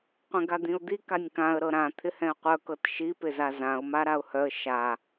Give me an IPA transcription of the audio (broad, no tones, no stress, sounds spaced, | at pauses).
qʷ ɛ̃ ɡ a d̪ ĩ ʊ̯ d̪ i k a nʲ k ã ə̯ ɾ ɤ ɾ ã t̪ʰ ɪ h ɛ̃ ə̯ qʷ œ k ɤ t ʃ i p ɪ z a z ã ʊ̯ m a ɾ a ʊ̯ h œ ə̯ ʃ a